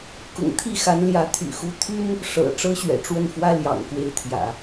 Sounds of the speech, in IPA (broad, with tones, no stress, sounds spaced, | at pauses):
k ʊ̰˨˩ ŋ t̪ʰ i˥˩ x a˧˥ n l j ä˧˥ t̪ʰ y̰˨˩ x u˧˥ t̪ʰ y˥ n | ʂ ɤ̰˨˩ ʈ͡ʂ ɤ˥ ɕ ɥ ɛ̰˨˩ ʈ͡ʂ w ə˥˩ n f w ä˥ l j ɑ̰˨˩ ŋ k w e˥˩ ɪ̯ t̪ʰ j ä̰˨˩˦